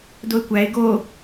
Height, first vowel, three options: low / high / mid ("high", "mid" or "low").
mid